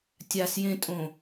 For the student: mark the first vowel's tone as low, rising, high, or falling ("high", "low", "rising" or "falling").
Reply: low